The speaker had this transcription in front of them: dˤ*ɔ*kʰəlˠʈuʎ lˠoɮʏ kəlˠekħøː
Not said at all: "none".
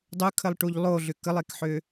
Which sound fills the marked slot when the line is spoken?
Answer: ɵ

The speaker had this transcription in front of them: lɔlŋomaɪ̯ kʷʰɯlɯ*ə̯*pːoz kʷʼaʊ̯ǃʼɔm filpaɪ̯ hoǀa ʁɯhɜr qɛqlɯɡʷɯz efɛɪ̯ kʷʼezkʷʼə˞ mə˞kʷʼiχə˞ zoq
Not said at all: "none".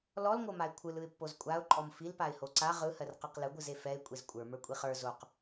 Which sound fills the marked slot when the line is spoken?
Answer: ɪ̯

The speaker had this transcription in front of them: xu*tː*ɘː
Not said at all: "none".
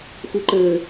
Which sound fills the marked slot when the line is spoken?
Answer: ǃ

